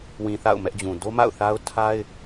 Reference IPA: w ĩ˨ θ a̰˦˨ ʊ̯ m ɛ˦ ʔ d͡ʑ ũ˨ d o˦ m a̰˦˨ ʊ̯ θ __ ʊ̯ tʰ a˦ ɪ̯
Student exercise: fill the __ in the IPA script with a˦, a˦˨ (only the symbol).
a˦